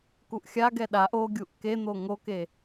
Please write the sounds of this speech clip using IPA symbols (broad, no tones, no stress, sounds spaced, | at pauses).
k u ʔ xʲ a ɡ ɛ ɗ a ʔ o ɡʲ u ʔ k e n̪ o ŋ o k e